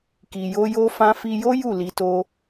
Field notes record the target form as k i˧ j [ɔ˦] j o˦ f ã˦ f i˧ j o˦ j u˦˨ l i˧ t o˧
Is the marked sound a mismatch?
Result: yes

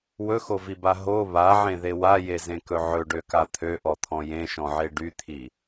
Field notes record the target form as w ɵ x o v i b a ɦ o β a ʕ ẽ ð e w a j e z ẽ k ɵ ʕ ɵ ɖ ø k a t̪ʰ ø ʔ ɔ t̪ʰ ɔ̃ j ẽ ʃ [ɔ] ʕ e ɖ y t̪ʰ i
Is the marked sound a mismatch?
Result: yes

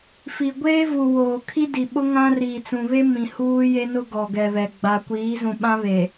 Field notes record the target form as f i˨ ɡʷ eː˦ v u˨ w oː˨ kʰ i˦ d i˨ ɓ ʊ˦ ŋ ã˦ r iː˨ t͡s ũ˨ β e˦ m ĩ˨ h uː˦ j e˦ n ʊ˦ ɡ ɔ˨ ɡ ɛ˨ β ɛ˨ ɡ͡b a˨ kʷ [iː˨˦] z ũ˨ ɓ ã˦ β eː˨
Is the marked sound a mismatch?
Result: no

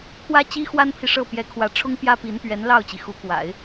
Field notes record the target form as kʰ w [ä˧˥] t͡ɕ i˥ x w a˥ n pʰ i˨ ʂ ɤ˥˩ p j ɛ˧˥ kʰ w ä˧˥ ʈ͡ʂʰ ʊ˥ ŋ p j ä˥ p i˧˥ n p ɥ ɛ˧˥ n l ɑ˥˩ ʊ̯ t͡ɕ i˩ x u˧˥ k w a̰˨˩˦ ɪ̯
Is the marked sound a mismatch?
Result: yes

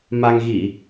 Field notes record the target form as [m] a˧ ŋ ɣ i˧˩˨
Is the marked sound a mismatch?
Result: no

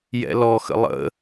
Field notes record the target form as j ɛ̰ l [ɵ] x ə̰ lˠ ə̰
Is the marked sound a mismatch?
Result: yes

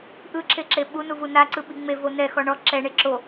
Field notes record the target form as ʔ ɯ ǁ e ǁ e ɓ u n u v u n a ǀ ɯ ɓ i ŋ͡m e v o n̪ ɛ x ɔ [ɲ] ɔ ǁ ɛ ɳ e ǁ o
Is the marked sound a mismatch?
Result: yes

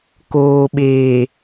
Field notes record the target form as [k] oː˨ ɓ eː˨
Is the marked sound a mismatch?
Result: no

